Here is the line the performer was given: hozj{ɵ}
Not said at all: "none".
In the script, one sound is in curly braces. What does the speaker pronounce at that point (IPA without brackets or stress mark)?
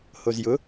ʊ